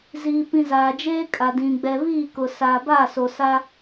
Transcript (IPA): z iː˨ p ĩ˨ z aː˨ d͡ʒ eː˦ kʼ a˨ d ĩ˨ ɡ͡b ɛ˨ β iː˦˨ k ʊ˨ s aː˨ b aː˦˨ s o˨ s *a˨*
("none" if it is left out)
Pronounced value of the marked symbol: a˦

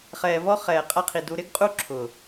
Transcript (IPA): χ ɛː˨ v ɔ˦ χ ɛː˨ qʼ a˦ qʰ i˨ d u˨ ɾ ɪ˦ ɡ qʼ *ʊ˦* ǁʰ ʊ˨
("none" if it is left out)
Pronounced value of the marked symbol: u˦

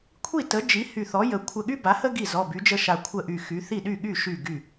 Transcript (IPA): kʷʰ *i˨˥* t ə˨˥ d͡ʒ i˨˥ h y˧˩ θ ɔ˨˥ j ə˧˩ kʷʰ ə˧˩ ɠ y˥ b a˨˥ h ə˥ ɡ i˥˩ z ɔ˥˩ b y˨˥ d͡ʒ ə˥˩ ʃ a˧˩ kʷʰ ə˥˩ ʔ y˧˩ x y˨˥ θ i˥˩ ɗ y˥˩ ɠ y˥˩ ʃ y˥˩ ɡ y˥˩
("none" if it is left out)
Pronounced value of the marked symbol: i˥˩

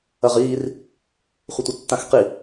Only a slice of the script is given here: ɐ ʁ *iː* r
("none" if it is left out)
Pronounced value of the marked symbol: iː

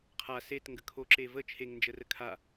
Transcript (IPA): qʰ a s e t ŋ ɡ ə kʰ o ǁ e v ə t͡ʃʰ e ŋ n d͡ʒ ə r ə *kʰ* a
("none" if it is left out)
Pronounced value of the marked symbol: kʰ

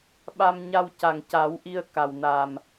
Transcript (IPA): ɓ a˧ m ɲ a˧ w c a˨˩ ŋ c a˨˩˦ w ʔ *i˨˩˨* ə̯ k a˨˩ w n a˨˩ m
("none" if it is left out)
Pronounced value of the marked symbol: i˧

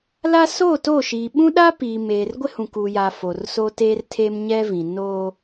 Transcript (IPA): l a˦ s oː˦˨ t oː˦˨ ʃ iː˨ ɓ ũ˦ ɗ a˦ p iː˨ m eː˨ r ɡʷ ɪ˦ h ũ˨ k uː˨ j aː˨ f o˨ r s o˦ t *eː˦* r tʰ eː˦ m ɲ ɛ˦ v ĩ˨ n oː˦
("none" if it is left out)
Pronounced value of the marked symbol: eː˦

